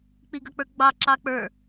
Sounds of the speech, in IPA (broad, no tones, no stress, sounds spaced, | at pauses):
k͡p i ɡ ʌ k͡p ə˞ ɡ͡b ɑ ǁ ɑ k͡p ə˞